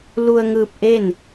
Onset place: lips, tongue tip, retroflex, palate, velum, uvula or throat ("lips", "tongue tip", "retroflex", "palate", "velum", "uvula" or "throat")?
tongue tip